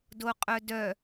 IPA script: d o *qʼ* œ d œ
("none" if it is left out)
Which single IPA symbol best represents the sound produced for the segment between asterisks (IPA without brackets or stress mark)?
qʼ